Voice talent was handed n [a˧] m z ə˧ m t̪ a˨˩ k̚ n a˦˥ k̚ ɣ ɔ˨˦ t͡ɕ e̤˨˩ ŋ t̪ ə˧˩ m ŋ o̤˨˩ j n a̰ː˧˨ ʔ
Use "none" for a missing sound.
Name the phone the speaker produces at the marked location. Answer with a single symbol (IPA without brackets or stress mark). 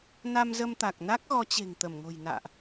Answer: a˧